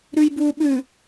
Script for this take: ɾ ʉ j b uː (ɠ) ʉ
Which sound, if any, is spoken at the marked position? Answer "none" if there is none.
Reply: ɓ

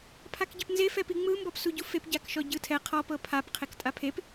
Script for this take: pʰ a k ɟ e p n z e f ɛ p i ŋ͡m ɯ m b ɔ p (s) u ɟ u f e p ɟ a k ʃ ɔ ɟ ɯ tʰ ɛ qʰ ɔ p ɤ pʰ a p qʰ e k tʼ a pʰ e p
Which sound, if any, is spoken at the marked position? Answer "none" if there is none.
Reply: s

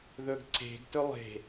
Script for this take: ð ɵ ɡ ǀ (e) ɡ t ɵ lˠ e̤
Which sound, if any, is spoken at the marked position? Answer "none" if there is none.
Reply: e̤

